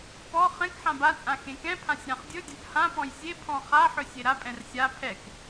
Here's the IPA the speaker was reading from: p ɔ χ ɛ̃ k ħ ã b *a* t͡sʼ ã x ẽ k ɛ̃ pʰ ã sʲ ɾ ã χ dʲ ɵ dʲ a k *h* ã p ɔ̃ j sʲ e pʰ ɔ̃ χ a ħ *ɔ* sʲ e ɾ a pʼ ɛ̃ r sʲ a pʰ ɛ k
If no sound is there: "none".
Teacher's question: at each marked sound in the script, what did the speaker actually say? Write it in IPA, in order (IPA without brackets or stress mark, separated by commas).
a, h, ɵ